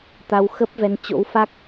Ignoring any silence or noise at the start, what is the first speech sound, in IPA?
t̪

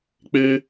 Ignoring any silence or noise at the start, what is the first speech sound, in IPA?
k͡p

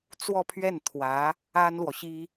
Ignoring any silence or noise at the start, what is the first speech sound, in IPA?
t͡s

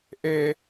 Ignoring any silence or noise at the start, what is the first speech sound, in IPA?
ʔ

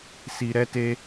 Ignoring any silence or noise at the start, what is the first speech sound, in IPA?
s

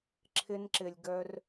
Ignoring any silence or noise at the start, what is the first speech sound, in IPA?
ǁʰ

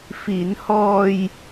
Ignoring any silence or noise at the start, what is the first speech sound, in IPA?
f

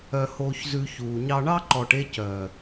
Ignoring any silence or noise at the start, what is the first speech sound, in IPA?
œ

